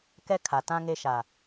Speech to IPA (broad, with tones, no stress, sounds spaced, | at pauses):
k ɛ˦ kʰ a˨ t ã˦ ŋ e˦ ʃ a˨